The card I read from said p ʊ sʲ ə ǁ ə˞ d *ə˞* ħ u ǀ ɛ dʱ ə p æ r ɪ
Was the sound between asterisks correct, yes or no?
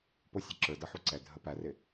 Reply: no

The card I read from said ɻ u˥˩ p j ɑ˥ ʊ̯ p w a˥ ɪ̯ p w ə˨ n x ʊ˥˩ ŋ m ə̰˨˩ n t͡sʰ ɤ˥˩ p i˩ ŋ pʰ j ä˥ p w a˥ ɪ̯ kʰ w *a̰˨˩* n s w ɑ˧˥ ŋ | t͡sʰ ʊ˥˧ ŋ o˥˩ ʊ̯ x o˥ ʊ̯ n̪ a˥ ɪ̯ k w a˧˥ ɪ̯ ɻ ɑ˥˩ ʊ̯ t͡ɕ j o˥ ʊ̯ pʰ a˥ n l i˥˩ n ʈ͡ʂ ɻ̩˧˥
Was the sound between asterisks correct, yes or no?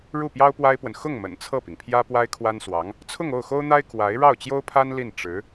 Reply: no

